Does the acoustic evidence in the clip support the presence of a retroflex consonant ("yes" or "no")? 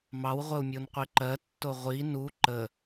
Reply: no